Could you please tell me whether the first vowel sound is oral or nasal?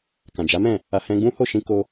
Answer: nasal